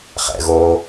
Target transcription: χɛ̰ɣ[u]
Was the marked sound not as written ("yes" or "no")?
yes